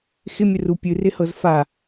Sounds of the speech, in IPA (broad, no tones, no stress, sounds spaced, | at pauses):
x ɪ mʲ ə r u pʲ ɨ r ɪ h ɤ z f a